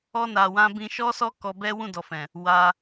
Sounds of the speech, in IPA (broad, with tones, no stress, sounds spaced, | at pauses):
ɔ˧ n a˨ w ã˧ b ĩ˧ ʃ ɔ˦ s ɔ˦ k ɔ˧ b ɛ˦ w ũ˦˨ d ɔ˨ f ɛ̃˨ | w a˧